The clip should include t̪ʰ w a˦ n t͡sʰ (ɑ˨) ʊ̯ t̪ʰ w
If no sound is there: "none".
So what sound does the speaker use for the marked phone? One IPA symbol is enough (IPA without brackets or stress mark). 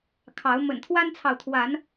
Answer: ɑ˨